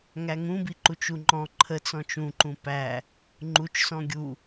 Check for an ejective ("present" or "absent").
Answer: absent